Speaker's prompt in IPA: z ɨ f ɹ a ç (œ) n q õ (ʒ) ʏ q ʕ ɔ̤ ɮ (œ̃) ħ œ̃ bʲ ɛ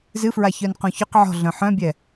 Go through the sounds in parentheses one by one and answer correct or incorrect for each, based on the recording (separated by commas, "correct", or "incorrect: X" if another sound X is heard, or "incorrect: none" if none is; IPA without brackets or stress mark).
correct, incorrect: ç, correct